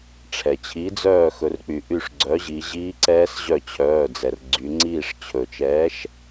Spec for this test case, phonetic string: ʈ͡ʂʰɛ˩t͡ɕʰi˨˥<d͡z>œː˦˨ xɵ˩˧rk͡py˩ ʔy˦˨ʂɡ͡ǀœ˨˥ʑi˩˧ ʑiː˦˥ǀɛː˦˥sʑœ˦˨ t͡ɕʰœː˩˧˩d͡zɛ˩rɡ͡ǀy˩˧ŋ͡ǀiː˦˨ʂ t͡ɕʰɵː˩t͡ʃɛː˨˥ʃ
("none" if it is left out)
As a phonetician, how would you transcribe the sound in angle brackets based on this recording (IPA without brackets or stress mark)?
d͡z